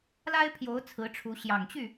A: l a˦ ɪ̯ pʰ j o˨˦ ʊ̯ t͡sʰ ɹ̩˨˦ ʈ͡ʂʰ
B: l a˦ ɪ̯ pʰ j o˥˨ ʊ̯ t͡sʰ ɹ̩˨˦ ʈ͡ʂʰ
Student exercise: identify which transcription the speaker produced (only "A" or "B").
A